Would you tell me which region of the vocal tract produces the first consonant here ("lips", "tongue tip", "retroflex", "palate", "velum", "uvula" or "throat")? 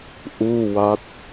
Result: throat